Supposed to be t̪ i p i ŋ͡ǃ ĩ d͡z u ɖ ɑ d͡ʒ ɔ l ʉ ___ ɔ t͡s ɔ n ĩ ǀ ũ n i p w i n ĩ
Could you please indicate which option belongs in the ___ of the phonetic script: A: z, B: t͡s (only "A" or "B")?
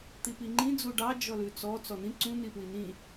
B